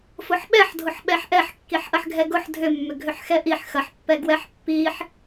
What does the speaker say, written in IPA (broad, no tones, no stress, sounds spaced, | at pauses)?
f ʊ ħ ɓ ɛ ħ dʱ ʊ ħ ɓ ɛ ħ ʔ ɛ ħ kː i ħ ʔ ɐ ħ ɡʱ ɛ ɡ ʊ ħ dʱ ʏ mː ʏ ɡʱ ʏ ħ x ɛ ʔ i ħ x ɐ ħ pː ɛ ɡ w ɛ ħ pː i ħ